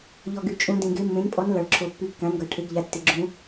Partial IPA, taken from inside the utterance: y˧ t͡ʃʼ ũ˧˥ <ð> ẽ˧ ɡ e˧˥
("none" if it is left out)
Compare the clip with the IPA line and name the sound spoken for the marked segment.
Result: d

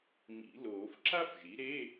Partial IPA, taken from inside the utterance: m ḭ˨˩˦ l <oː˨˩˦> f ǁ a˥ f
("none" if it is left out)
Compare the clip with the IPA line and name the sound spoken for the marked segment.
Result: oː˨˩˦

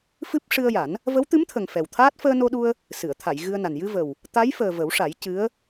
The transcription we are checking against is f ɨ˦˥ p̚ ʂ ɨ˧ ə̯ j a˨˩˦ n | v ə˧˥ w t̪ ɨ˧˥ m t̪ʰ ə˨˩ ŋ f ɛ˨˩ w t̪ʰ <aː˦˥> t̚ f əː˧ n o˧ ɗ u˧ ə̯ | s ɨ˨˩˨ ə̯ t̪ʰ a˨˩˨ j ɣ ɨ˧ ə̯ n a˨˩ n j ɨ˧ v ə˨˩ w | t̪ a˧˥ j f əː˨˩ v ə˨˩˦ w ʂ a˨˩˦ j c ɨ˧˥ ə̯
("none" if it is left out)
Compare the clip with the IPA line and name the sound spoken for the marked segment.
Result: aː˦˥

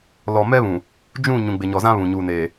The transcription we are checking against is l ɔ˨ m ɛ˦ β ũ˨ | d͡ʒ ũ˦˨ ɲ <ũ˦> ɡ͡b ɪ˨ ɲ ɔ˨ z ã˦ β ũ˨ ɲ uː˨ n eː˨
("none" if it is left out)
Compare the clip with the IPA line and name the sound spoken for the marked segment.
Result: ũ˨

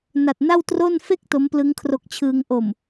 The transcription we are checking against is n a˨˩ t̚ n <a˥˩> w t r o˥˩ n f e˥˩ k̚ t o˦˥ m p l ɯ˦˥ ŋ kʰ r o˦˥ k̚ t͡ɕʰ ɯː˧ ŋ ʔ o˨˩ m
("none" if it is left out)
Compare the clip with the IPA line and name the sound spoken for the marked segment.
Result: a˥˩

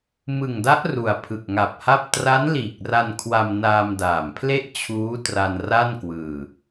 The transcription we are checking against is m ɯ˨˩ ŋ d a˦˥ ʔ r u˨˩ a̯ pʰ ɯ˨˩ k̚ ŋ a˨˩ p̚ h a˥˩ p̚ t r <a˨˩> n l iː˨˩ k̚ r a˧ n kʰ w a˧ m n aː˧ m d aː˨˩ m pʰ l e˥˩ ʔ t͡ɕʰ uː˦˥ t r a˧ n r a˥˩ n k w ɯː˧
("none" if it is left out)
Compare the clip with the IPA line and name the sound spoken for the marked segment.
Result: a˦˥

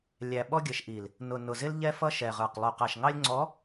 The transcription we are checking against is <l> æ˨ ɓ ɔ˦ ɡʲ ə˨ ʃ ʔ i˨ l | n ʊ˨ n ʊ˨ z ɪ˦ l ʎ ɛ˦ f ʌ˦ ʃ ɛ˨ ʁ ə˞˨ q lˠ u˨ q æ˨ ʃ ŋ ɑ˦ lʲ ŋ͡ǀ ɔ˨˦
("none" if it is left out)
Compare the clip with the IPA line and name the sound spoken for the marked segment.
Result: lʲ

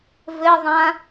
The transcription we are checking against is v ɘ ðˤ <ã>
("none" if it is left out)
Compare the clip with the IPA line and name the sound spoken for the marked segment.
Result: ã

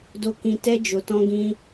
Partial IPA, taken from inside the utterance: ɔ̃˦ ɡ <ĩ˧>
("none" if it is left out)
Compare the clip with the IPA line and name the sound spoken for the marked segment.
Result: ĩ˦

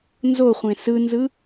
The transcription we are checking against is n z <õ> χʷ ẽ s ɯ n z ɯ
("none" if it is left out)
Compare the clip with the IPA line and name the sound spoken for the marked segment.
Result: o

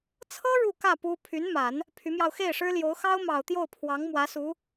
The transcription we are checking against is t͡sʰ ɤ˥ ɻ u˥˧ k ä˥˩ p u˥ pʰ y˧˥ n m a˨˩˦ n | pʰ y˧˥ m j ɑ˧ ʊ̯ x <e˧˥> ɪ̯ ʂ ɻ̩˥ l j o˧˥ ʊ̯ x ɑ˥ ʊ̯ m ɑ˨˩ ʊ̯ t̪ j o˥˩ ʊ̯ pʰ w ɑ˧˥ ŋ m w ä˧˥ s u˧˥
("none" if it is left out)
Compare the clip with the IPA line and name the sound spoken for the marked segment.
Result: e˥˩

